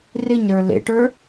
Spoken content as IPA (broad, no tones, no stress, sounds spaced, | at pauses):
r ɪ ɲ ɾ ə˞ l ḛ ʈ ə˞